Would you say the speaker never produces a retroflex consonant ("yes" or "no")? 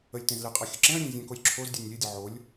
yes